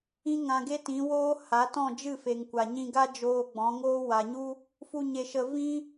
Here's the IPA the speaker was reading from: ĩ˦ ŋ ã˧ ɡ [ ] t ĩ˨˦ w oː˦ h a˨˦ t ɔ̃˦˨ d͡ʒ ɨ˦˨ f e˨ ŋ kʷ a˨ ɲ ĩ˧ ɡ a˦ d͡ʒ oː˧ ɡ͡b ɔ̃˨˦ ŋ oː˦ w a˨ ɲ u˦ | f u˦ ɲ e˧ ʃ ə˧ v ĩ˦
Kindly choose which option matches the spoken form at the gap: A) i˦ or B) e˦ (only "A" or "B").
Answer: B